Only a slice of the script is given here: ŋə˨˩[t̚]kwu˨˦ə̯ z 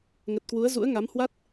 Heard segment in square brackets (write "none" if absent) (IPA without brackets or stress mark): t̚